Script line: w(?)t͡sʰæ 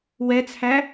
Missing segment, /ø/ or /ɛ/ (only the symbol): ɛ